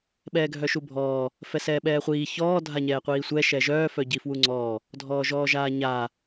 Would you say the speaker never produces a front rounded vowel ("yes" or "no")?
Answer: no